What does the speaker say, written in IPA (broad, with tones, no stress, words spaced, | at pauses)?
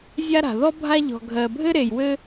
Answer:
zʲa˦ɾa̤˩ðɔ˥ bʱa˦ʎɔ̤˨ ɡʱɜ˨bʱɘ˦ ɾe˨jwɘ˦